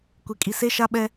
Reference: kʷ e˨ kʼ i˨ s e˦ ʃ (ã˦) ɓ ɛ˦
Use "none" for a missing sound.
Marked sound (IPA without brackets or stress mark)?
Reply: a˦